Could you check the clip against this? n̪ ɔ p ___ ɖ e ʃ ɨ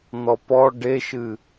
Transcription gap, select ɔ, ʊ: ɔ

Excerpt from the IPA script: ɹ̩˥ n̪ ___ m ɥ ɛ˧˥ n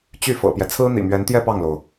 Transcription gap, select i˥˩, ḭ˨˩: ḭ˨˩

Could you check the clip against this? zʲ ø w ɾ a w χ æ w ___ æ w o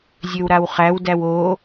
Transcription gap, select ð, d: d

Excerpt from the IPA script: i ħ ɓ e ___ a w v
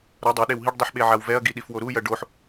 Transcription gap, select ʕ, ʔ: ʕ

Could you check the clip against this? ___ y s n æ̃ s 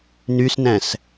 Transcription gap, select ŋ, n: n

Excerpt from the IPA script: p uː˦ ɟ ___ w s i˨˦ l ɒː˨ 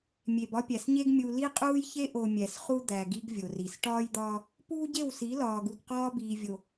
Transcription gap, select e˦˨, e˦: e˦˨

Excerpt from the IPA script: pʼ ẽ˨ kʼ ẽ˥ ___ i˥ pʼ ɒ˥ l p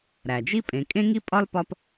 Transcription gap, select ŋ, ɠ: ŋ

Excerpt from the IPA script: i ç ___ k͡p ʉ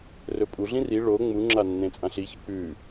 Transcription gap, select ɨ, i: ɨ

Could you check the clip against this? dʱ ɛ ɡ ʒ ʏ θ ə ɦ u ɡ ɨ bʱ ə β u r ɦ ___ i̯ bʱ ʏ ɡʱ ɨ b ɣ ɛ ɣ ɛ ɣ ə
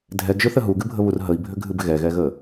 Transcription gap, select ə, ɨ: ə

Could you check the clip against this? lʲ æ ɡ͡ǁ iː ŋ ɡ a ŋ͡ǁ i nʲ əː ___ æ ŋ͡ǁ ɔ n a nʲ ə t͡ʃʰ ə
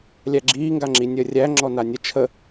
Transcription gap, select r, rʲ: rʲ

